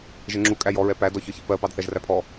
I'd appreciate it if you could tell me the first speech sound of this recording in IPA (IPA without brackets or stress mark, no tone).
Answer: ʒ